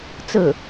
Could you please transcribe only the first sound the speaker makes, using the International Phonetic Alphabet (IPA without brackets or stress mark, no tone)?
t͡s